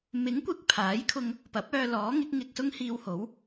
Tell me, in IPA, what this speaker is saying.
m ɪ˨˥ ŋ kʷ ɪ˨ k̚ pʰ aː˨˥ j kʰ ʊ˧ ŋ | p ɐ˨˥ p̚ œː˧ l ɔː˨˥ ŋ ɪ˨˥ k̚ ŋ ɪ˧ k̚ s ʊ˥ ŋ h iː˧ w h o˨˥ w

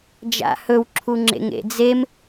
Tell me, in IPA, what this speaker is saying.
d͡ʒ a̰ h ɵ w ǁʰ u ŋ͡ǁ ḛ ŋ ḛ d͡z e m

